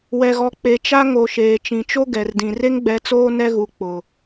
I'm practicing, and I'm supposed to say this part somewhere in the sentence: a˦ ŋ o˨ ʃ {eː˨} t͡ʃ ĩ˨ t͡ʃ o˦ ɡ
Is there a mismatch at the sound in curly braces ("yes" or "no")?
no